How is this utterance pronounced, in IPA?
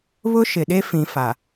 β ʊ˦ ʃ ɪ˨ ɗ e˦ f ĩ˨ f a˨

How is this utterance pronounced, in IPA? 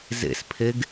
z ḛ s pʰ e ɡ

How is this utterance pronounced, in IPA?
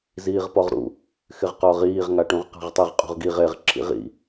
z iː ʁ p ɔ ʁ ɾ ṵ | x ɪ ʁ q ɔ ʁ iː ʁ ŋ a ʈ ũ ʁ q a̤ ʁ tˤ ɘ ʁ qʼ ṳ ʁ ɡ i ʁ e ʁ ǁʰ ḭ ʁ ḭ

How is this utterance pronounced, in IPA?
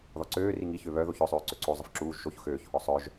ð ɔ ǀ øː r i ŋ i ç ø β œ ð o ç œ sˤ øː ǀ ø ǀ o zˤ ə f ǁ uː ʒ ʃ o ç x øː ç h ɔ sˤ œ ʒ

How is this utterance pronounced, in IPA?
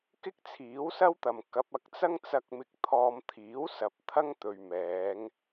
k ɪ˥ k̚ t͡sʰ iː˨˥ w s ɐ˥ w t̪ ɐ˨ m k ɐ˨˥ p̚ ɐ˨˥ k̚ t͡s ɐ˥ ŋ t͡s ɐ˧ k̚ m ɪ˨ k̚ t̪ʰ ɔː˨ m t̪ʰ iː˨˥ w s ɐ˨ p̚ t̪ʰ ɐ˥ ŋ t̪ ɵ˨ ɥ m ɛː˨˧ ŋ

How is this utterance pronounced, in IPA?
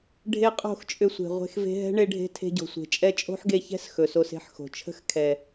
ɖʱ e˦ qʼ o̤˦˨ x t͡ʃʼ ʏ˧ sʷ e̤˨ ʁʷ e̤˧ x v e̤˧ ɦ ɛ̤˦ ɳ e˧ ɖʱ e̤˧ tʰ e̤˧ ɟ o̤˨ sʷ e̤˨ t͡ʃʼ ɛ˧ t͡ʃʼ o̤˦ ħ ɡ e˧ ç ɛ̤˦ s x ɵ˨ s o˧ s e̤˦ ħ x o̤˨ t͡ʃʰ ə̤˦ x kʰ ɛ˨

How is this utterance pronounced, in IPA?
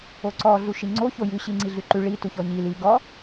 o ǀ ɔ ɮ u ʃ i ŋ͡ǀ o ç o j ʉ ɕ i ŋ͡ǀ i ɮ ʉ ǃ ʉ ɭ i t u ç ɔ ɲ i l i ɡ ɔ

